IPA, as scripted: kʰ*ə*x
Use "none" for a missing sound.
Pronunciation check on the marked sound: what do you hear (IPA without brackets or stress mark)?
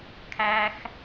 æ